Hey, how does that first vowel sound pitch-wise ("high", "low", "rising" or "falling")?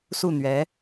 falling